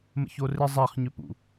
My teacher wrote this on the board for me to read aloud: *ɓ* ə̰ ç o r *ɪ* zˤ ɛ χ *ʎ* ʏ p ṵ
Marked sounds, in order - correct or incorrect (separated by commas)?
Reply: incorrect, correct, incorrect